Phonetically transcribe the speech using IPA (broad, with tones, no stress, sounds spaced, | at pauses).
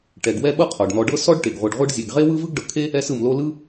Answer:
ʈ ɛ˨ ɡ w ɛ˥ ɓ ɤ˦ qʰ ɔ˩ ɖ n̪ ɔ˨ ɖ ɤ˦ s ɔ˥ ɖ ʈ e˩ ɡ ʁʷ e˨ ɖ ʁʷ ɯ˦ ɖ zʲ e˨ ɡ ʁ e˥ w ɯ˥ v ɯ˥ ɡ ɖ ɤ˨ kʰ e˥ | ɛ˦ s ɯ˨ m l o˦ l ɯ˥